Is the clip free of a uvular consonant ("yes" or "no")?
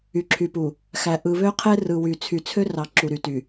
no